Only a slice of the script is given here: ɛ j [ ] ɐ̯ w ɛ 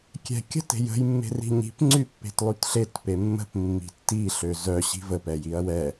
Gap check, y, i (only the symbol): i